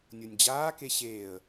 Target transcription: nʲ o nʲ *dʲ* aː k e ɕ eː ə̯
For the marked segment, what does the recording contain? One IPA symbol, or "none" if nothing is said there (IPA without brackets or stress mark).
d͡ʑ